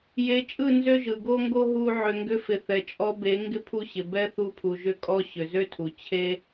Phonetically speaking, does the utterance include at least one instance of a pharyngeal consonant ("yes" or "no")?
yes